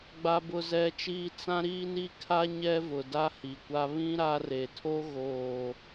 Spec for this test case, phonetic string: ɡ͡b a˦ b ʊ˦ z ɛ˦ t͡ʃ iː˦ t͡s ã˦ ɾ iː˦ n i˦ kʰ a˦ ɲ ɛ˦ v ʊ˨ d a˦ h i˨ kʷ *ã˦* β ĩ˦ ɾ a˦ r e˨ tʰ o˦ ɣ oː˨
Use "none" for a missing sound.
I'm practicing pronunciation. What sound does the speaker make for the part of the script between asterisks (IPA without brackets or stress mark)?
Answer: a˦